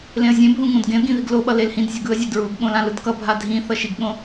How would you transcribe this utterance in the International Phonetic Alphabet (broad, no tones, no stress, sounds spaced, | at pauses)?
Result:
l ẽ ə̯ zʲ ẽ bʱ ũ ŋ õ d ɡ ẽ ə̯ ɡ ĩ ð i ɡ l o ɓ ʌ l e l h ĩ d zʲ ʌ ɡ ɯ ə̯ zʲ a d ɹ u ɡ ɠ õ l ã l ɯ d k ʌ bʱ a dʱ ĩ θ ʌ ʃ i ɡ ɠ õ